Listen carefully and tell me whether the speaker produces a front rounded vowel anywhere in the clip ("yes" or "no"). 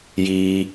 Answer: no